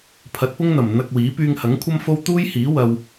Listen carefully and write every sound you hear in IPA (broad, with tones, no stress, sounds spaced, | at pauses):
pʰ ɐ˨˥ t̚ p ʊ˥ ŋ n̪ ɐ˨˩ m n̪ ɐ˧ k̚ w iː˨˥ p yː˧ ŋ h ɐ˨˥ ŋ kʷʰ ɐ˥ m f o˥ w t̪ uː˥ j h iː˨˥ w ɐ˧ w